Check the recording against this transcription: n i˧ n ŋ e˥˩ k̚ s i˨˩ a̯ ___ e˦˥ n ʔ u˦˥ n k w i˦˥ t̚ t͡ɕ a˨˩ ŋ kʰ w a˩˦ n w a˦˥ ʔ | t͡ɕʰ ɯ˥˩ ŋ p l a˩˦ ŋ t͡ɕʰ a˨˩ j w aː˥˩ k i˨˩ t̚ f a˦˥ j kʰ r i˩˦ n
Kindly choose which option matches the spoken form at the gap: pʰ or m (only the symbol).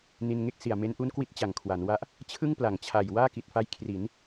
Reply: m